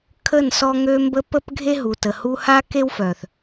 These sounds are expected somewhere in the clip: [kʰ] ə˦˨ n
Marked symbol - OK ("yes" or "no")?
yes